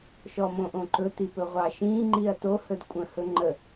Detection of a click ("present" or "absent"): present